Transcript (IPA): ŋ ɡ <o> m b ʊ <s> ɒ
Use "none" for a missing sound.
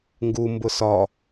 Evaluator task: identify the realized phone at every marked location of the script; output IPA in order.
u, s

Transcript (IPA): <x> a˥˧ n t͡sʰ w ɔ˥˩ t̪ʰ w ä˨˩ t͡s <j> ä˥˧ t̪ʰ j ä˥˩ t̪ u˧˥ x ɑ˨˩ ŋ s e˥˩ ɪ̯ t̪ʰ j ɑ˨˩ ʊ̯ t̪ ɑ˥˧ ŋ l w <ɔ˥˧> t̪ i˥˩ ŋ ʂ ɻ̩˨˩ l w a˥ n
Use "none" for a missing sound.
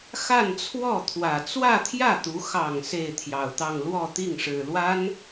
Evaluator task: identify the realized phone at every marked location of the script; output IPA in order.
x, w, ɔ˥˧

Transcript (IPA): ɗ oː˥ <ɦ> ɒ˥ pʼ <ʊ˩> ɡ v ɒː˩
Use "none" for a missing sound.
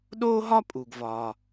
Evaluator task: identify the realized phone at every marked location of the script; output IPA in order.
ɦ, u˩

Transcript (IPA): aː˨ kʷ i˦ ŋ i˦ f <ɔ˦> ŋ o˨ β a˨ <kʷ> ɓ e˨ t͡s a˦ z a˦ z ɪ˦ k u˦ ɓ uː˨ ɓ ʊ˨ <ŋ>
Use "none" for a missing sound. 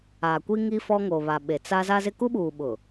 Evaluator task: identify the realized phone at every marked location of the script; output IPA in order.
ɔ˦, none, none

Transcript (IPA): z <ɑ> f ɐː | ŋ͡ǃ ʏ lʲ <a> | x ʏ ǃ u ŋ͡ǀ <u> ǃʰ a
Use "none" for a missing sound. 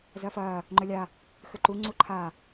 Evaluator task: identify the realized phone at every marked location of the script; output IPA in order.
ɐ, a, u

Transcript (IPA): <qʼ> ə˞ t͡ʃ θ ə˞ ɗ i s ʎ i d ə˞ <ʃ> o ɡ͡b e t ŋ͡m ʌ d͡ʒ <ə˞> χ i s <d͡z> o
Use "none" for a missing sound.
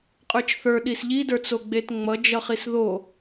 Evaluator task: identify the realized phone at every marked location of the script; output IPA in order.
qʼ, t͡s, ʌ, ð

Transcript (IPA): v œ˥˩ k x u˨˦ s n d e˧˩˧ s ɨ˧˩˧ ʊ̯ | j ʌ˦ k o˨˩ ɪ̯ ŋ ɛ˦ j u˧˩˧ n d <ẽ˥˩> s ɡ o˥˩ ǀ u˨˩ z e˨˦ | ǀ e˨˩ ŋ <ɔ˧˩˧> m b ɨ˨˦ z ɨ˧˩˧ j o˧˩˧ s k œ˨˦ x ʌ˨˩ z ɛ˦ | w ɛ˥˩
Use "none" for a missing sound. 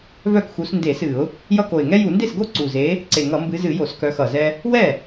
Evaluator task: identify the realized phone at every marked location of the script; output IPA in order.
e˥˩, ʌ˧˩˧

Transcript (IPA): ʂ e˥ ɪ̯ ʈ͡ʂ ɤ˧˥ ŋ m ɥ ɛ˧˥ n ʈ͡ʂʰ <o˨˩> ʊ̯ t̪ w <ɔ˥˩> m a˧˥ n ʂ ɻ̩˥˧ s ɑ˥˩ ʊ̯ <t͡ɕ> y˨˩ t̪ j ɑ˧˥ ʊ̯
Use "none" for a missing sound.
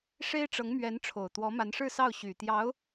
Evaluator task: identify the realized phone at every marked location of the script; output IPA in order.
o˨˩, ɔ˧˥, ɕ

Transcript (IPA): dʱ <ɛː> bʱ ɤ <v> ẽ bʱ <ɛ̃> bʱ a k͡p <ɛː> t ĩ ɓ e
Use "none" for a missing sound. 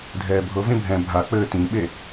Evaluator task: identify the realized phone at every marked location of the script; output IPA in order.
ɛː, v, ɛ̃, ɘː

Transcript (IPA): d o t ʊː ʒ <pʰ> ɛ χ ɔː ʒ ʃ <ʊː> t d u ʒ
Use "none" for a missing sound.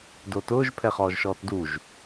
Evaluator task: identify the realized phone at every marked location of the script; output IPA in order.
pʰ, ɔː

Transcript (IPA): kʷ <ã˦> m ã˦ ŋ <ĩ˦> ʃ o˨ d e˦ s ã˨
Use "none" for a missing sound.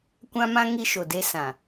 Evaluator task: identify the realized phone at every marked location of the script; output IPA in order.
ã˦, i˦

